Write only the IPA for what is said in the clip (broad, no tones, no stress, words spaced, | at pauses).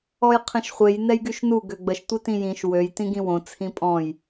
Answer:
ɔjqʰẽʃχʷej nɛjɡyʃnu ɡøɡ͡bəʃ tʷitĩjĩʃ wøj tĩɡĩwõ t͡sʰĩpʼɔ̃j